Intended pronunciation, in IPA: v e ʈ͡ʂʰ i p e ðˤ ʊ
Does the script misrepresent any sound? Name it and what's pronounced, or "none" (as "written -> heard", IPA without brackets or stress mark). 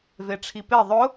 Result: none